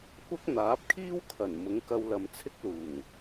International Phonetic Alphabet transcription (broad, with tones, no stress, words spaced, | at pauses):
kʷɐ˥k̚ n̪aː˨˥p̚kʰiː˥w kʰɐ˨˩n mʊ˨˥ŋkɐ˧wlɐ˨mt͡sʰɪ˥k̚ luː˨˩ŋ